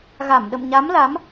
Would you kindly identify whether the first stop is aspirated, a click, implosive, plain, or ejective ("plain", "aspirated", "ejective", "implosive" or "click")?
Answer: implosive